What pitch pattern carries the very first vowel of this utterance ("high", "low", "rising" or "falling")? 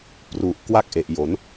low